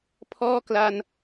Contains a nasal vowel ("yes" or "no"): no